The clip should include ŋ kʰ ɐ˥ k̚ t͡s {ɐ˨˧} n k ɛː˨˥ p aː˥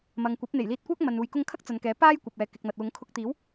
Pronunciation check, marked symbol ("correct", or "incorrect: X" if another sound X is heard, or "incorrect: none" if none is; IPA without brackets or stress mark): correct